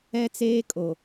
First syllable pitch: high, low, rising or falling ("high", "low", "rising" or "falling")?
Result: high